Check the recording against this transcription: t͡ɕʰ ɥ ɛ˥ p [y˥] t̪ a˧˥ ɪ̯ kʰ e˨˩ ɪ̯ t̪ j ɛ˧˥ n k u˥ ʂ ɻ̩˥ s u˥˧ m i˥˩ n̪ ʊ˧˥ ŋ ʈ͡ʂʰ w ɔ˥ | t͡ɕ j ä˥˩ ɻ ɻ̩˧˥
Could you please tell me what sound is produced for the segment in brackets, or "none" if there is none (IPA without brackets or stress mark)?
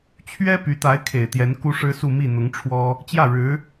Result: y˧˥